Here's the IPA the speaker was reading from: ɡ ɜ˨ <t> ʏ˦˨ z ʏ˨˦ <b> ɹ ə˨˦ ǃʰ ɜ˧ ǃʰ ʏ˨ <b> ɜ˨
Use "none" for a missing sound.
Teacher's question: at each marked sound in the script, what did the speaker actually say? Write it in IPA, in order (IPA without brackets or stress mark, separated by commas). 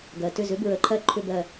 t, b, b